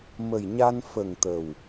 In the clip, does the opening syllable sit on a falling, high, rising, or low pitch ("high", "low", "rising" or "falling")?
low